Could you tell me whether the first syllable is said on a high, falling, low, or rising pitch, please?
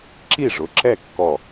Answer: falling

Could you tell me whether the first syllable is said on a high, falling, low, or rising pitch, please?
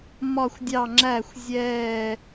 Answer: falling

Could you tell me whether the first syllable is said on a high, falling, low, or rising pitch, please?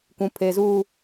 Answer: high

